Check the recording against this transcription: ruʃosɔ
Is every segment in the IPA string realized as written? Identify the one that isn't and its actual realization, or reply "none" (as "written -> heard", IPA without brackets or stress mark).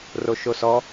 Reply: u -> o